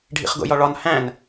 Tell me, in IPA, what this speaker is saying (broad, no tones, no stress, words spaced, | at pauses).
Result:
ɖʱḭχɡo̰jɒɭɒn hæ̃n